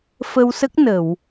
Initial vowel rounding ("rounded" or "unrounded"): unrounded